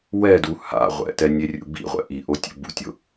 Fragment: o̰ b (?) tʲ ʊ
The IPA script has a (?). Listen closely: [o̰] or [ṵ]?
ṵ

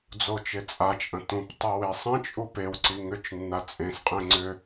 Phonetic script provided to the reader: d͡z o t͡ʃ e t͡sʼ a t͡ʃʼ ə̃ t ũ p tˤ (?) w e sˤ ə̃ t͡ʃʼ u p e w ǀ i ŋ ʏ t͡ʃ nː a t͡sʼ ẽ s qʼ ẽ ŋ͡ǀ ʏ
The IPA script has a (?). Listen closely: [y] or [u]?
u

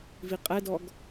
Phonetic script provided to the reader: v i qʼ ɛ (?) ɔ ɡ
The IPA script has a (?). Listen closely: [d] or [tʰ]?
d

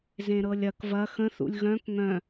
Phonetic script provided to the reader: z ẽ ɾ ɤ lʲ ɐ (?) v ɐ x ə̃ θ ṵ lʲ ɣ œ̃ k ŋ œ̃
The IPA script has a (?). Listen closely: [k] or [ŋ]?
k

